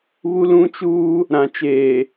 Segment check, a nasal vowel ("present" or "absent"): present